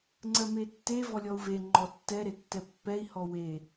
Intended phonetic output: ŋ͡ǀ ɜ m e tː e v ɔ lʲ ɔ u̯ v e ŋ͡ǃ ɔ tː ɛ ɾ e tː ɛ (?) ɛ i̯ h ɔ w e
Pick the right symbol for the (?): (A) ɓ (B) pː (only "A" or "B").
B